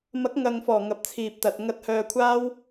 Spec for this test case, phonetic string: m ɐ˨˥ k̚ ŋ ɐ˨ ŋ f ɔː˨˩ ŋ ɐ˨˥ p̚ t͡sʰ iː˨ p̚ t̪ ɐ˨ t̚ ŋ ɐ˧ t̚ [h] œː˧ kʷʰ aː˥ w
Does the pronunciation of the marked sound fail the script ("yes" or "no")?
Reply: no